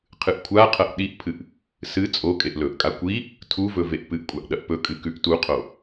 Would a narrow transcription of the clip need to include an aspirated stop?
yes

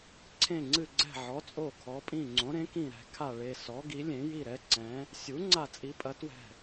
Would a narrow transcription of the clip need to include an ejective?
yes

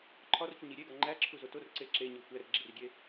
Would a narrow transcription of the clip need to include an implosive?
no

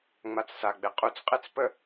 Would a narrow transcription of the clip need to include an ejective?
yes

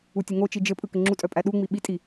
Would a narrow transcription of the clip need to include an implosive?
yes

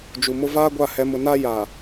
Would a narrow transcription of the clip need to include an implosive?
no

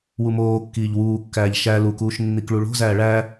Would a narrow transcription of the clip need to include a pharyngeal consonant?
no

